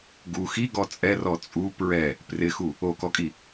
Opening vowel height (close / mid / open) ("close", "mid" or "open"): close